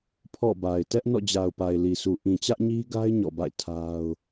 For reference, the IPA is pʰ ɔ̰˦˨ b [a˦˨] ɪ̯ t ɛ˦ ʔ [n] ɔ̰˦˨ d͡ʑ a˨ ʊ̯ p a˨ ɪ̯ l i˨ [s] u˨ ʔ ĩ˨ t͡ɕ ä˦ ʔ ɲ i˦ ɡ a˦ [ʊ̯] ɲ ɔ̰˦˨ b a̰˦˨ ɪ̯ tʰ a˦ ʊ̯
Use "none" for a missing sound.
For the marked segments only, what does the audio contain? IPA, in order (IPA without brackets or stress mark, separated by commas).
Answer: a˨, n, s, ɪ̯